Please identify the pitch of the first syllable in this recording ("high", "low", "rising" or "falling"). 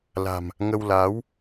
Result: low